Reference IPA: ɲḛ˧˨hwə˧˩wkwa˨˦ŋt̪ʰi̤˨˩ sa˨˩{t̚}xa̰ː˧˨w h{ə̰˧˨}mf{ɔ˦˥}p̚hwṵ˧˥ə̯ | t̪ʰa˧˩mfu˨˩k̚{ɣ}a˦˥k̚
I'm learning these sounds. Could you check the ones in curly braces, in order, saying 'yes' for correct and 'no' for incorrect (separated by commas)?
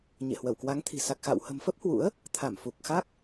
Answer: no, no, no, no